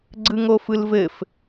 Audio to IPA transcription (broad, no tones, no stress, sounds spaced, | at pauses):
ɡ͡ǀ ɯ ŋ o f ɯ l v ɘ f